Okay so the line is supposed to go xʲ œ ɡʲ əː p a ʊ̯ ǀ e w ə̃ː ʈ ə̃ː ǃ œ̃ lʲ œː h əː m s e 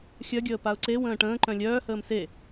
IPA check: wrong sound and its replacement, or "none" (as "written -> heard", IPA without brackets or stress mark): none